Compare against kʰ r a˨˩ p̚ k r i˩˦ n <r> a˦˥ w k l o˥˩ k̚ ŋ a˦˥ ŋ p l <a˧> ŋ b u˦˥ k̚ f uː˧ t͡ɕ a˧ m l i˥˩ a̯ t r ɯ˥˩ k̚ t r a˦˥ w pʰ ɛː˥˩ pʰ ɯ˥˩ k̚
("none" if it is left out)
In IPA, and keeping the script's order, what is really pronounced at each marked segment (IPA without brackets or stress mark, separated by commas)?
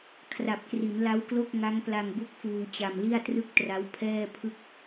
l, a˧